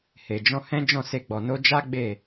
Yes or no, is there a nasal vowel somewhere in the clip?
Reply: yes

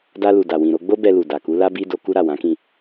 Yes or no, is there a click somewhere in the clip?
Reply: no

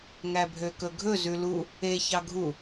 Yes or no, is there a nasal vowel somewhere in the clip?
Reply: no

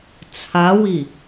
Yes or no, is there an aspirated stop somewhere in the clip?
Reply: yes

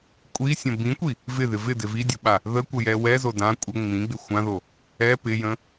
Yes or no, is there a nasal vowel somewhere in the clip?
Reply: yes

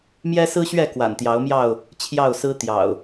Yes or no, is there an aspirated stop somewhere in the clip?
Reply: yes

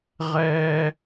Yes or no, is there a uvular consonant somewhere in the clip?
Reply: yes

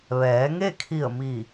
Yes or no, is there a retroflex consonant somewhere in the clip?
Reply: no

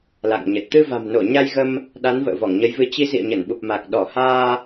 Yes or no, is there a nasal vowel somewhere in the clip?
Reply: no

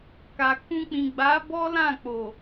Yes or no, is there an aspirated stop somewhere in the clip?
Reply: no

